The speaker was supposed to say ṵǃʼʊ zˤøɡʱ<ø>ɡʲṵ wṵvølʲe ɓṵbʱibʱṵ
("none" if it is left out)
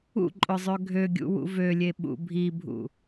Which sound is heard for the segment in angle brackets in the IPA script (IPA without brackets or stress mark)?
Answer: ø